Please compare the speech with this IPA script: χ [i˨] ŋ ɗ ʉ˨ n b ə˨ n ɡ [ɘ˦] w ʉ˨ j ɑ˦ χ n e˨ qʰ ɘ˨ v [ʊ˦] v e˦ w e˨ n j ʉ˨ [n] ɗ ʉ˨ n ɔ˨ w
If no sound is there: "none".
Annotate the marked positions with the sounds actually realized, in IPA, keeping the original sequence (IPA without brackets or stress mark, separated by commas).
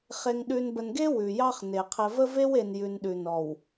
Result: e˨, e˦, ə˦, n